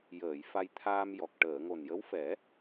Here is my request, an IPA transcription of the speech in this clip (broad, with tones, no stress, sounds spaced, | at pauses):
j əː˨˩˨ j f a˧ j t̪ʰ aː˧ m j ɔ˨˩ k̚ ʈ əː˨˩˨ ŋ o˨˩ n j ə˧˥ w f ɛ˨˩˦